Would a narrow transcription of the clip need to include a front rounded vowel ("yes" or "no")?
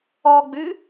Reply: yes